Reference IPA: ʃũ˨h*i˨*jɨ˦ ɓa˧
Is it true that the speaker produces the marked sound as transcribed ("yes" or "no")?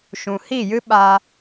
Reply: no